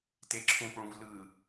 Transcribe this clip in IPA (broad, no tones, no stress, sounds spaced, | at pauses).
t e ǁʰ ũ p ɭ ũ v l ɯ